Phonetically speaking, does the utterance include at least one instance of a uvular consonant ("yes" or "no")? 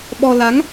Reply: no